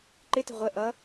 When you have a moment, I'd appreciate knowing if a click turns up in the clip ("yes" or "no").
yes